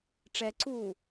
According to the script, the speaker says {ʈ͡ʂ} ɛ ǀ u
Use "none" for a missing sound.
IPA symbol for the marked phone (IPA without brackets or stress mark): ʈ͡ʂ